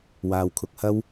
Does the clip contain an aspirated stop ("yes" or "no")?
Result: yes